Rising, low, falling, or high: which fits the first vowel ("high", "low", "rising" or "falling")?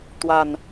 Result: low